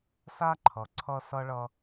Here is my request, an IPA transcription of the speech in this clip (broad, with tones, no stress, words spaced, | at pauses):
sa˦ ǃʰʌ˨ǀʰʌ˦ sʌ˦ɭʌ˦